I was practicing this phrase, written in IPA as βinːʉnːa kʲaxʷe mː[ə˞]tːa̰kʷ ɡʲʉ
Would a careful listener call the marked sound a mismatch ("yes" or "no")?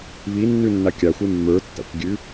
no